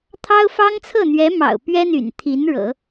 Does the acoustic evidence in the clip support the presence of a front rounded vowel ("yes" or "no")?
yes